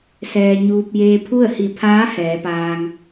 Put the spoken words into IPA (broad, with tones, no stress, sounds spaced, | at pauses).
s ɛː˧ ɲ uː˧ p̚ j eː˧ pʰ u˥˨ ə̯ h i˧˩ pʰ aː˧˥ h ɛː˩˧ p aː˧ ŋ